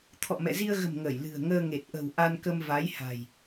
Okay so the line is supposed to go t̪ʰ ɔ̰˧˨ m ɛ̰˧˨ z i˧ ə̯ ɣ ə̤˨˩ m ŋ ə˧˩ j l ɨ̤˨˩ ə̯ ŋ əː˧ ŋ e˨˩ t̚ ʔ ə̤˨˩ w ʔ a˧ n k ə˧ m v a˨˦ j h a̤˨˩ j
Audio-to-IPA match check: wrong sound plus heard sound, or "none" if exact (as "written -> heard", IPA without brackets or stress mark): none